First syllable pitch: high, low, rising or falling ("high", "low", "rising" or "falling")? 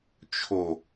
low